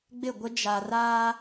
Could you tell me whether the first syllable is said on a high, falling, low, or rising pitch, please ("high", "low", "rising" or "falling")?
falling